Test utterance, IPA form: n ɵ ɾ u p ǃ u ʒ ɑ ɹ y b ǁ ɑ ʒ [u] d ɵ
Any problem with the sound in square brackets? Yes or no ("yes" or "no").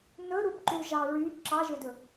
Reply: yes